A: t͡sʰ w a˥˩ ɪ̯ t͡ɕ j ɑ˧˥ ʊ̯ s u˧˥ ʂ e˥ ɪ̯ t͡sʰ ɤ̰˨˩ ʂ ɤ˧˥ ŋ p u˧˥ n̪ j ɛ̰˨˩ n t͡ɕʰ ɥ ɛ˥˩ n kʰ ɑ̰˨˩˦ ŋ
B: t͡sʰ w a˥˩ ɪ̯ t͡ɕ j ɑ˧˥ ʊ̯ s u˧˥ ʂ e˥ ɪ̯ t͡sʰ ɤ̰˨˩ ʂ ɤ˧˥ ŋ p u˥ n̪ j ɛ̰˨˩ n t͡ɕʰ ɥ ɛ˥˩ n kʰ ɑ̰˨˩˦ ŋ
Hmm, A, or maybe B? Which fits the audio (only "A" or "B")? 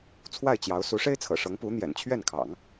A